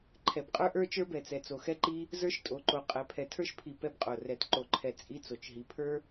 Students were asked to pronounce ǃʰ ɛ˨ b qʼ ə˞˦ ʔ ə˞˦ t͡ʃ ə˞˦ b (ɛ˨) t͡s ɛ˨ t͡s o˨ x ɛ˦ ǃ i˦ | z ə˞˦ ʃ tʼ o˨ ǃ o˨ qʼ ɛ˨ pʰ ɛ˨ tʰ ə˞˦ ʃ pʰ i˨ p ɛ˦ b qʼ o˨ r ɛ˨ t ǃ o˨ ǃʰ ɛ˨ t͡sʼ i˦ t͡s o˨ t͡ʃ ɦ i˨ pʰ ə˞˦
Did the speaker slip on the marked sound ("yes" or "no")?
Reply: no